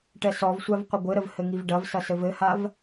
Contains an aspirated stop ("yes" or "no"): no